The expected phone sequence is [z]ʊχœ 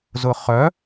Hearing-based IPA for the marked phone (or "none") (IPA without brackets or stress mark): z